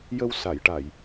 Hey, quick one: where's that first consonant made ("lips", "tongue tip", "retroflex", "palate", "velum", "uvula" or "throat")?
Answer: palate